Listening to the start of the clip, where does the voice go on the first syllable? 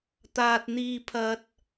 low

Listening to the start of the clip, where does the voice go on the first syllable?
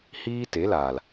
high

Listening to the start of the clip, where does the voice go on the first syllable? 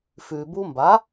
low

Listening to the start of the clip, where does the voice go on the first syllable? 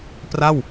falling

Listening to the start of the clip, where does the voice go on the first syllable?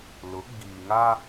rising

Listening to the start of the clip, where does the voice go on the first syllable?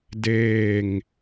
falling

